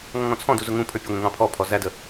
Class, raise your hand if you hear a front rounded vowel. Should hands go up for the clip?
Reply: no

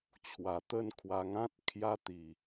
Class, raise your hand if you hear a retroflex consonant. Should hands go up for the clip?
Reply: no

